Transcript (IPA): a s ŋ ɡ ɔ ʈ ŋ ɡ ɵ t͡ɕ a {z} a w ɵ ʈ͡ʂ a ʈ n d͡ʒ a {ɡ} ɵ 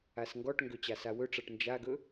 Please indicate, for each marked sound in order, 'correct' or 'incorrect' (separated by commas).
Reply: incorrect, correct